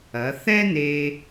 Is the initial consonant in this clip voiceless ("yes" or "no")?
yes